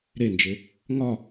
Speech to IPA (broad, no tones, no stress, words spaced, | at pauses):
ɾend͡ʒe | ŋɒ